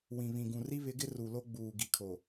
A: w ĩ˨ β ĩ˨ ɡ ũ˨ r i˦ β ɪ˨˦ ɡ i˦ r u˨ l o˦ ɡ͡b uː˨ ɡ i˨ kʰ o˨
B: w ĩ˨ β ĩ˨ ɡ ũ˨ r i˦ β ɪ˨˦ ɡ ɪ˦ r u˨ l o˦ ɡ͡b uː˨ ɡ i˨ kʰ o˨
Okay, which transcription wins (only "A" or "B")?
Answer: B